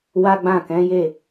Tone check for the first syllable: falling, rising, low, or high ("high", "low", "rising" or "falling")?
high